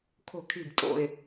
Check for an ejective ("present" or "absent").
present